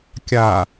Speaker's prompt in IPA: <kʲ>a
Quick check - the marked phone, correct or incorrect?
correct